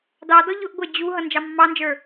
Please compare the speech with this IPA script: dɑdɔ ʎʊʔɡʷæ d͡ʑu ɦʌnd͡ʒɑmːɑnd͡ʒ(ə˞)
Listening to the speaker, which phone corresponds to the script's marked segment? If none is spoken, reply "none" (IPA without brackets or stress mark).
ə˞